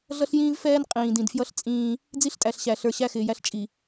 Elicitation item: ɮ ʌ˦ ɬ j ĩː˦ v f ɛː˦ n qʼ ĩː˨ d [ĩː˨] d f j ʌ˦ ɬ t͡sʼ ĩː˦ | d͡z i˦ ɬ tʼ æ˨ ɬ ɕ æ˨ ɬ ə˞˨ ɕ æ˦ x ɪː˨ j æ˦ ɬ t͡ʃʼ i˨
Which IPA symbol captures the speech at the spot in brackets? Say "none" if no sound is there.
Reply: ĩ˨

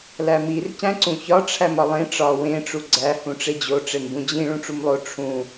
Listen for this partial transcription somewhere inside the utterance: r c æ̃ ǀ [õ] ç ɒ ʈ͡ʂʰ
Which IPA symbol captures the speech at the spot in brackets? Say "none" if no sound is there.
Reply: ũ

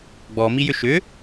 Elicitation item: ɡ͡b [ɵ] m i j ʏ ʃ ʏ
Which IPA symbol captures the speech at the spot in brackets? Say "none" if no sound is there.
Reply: ɔ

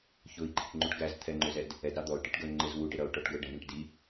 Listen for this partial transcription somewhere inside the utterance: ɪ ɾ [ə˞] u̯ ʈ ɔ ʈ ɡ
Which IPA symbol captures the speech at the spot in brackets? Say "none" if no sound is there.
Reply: ʌ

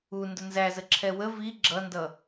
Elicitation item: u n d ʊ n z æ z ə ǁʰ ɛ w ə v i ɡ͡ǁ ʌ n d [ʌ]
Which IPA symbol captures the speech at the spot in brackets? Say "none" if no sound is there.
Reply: ʌ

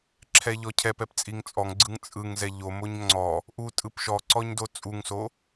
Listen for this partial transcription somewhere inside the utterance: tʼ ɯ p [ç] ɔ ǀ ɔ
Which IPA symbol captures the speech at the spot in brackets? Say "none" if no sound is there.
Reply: ʃ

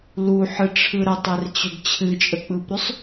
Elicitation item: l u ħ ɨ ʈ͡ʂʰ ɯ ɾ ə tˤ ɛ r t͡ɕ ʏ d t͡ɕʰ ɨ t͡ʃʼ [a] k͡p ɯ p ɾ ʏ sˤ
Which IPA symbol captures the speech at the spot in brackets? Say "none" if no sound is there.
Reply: ə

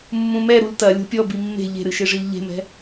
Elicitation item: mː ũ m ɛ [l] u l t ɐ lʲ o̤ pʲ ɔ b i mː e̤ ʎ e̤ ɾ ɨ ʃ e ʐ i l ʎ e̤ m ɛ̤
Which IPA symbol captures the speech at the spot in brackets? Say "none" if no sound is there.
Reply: ɾ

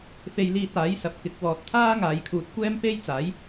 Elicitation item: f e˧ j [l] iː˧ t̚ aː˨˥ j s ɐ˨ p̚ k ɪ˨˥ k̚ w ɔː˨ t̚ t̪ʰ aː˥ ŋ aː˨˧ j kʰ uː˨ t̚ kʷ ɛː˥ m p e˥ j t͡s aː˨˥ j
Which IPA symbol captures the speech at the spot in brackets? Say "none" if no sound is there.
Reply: l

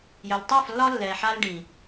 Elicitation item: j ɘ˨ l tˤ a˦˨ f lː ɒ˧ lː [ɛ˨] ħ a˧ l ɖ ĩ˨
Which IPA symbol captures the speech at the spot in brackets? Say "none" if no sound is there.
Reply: ɛ˨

